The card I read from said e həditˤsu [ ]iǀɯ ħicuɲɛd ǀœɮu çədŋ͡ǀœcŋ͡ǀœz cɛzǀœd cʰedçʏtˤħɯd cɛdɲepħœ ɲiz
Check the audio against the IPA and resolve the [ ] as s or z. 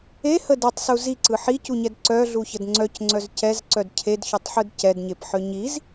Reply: z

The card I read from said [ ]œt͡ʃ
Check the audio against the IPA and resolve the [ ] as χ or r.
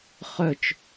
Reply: χ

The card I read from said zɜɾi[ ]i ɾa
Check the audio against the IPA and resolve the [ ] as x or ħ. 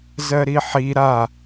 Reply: ħ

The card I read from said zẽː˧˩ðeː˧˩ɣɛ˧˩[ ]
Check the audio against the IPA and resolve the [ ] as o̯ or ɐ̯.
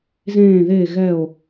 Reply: o̯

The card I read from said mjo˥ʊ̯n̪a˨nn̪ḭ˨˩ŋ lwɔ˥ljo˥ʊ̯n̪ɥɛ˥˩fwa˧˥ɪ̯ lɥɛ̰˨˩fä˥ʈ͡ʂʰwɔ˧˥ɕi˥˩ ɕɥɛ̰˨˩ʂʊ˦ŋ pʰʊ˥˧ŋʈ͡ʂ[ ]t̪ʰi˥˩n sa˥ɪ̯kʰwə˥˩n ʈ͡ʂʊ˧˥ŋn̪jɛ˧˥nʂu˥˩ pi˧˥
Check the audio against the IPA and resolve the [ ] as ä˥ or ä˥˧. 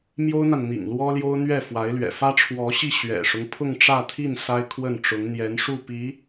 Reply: ä˥˧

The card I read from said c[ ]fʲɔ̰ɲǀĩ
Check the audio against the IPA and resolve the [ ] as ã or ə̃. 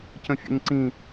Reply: ə̃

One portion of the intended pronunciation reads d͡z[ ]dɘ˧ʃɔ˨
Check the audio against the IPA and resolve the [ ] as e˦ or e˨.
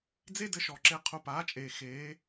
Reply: e˦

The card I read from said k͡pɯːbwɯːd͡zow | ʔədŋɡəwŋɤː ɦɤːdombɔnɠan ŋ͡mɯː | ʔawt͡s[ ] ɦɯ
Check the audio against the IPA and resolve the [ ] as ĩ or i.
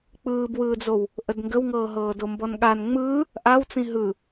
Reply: ĩ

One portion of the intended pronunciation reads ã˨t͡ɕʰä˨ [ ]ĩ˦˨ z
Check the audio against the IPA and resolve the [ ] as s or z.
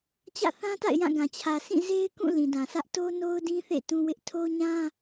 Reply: s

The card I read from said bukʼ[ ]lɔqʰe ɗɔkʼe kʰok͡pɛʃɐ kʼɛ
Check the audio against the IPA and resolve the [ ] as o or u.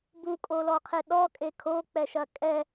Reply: o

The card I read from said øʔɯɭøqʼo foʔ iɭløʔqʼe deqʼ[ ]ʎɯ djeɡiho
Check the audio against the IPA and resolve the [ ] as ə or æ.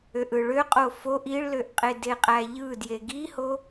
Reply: æ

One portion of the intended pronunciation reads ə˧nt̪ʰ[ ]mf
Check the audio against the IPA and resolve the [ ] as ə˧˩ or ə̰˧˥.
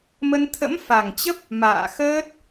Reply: ə̰˧˥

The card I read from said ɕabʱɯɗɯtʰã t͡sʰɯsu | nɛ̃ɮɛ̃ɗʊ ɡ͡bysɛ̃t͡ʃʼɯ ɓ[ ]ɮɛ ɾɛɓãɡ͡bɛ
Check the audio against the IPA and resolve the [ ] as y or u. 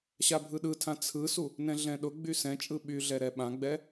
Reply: y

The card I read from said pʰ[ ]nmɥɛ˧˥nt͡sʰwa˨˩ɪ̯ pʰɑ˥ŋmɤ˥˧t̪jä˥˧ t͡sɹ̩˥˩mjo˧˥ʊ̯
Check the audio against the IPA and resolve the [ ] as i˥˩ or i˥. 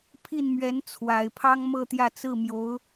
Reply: i˥˩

